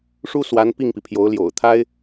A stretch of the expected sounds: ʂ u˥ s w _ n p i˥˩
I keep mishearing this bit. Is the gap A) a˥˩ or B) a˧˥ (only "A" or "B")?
B